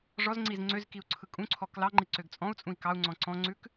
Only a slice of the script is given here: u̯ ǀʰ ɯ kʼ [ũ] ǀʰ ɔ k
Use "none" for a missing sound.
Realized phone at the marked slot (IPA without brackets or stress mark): ũ